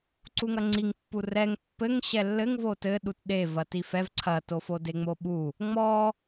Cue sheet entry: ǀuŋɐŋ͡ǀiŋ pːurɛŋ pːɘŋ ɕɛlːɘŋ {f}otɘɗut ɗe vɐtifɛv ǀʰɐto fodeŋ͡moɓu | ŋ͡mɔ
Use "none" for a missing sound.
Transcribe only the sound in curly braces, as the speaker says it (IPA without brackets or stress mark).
v